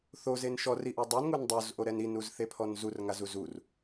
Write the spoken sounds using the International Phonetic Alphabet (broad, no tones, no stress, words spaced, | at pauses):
θozen ʃɔriʔu dˤunŋun dˤozʔoɾɛn inuzθepʰɔn zurŋazu zur